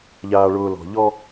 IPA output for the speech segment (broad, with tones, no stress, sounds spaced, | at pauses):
ʎ aː˨ ɭ ʊː˨ l ɔ̤˨ ʎ ɔ˧